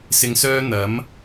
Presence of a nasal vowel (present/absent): absent